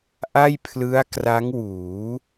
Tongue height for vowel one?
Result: low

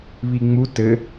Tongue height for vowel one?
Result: high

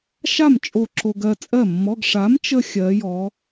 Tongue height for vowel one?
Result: low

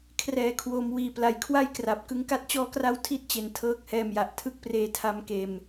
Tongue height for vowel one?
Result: mid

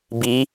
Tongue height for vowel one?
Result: high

